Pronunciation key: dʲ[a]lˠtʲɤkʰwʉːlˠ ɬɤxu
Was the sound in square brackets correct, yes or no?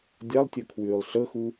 yes